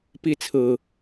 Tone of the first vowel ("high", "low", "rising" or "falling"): falling